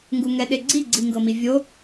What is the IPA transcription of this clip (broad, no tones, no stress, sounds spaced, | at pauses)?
ŋ ɡ u ŋ ɛ ɗ e ɡ͡ǀ i ɡ͡ǀ i ŋ ɡ ɤ m i vʲ o